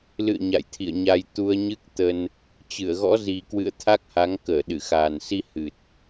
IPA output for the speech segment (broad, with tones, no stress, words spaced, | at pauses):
lɨ̰˧˨ə̯ ɲa̰˧˨jt̪ʰḭ˧˨ə̯ɲa˧j t̪u˧ə̯ɲɨ˦˥k̚t̪ə˧n | t͡ɕɨ˧˩ə̯ɣɔ̰˧˥ zi˨˩kwɨ̰˧˨ə̯ t̪ʰa˦˥k̚ha˨˦ŋ kəː˧˩ɗɨ˧˩xaː˨˩nsi˧ hɨ˨˩t̚